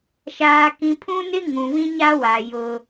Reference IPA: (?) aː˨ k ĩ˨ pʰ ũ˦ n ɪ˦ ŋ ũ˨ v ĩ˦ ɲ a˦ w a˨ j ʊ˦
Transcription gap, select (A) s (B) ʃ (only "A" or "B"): B